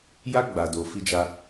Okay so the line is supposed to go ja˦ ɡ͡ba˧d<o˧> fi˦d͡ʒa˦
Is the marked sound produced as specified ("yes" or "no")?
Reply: yes